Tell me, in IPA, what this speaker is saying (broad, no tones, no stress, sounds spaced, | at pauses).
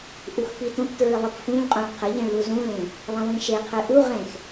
ʔ u x p i t õ p t ɹ ɨ lˠ ɨ p f ũ ʎ qʼ õ ɭ qʰ ə ʎ ĩ ɭ l u z ũ l ẽ | lˠ ə̃ w ĩ ʃ e qʰ ɨ ʔ u ʁ ẽ x